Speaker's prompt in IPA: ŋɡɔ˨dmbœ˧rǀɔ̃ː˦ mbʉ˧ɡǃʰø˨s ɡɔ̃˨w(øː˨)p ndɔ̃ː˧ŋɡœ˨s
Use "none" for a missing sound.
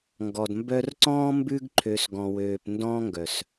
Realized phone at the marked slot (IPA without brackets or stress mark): øː˨